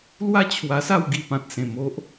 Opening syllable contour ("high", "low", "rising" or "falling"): high